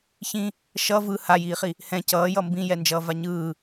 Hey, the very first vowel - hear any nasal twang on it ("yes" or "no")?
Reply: yes